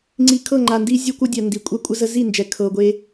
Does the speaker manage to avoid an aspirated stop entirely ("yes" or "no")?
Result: no